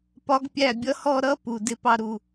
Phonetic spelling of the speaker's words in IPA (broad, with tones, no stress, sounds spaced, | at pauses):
p ɒ˧˥ ɡ pʲ æ˦˨ bʲ ʌ˧˥ h ɔ˦˨ ɾ ʌ˧˥ p u˨ d ɪ˧˥ p ɑ˦˨ ɾ u˦˨